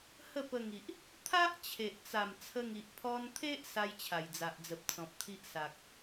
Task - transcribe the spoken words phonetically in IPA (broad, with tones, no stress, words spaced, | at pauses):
hə˥˧pə˧ŋi˨ʔ | t̪ʰa˦ʔ t͡ɕʰe˨ʔt͡sa˨˩m t͡sʰə˧ŋi˨ʔ pʰɔ˧nt̪ʰe˦ʔ sa˦jt͡ɕʰa˨˩jd͡za˨ʔd͡zə˨p̚ t͡sɔ̃˨p̚t̪ʰi˦ʔsa˨k̚